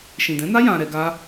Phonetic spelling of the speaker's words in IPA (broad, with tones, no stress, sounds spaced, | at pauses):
ʃ ĩ˨ d ɛ̃˨˦ n a˦ j ã˧ ɾ ɛ˧ ɡ a˦